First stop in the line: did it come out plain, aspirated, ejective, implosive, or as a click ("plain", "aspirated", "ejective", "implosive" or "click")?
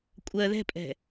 ejective